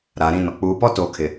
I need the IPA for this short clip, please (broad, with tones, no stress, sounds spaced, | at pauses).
ɾ aː˨ ɾ ĩ˦˨ n ɔ˨ k͡p uː˨ p ɔ˦ t oː˨ kʰ ɪ˨